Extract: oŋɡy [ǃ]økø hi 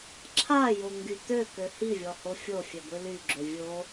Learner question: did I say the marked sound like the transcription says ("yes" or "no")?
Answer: no